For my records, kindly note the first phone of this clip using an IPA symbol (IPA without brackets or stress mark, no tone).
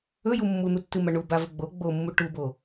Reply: ɵ